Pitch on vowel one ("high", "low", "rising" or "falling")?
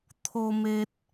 high